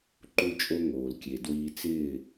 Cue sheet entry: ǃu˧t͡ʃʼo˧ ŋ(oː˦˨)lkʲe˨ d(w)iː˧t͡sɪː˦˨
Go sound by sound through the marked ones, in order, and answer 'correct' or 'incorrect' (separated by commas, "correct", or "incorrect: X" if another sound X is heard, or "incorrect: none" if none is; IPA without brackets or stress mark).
incorrect: oː˨, correct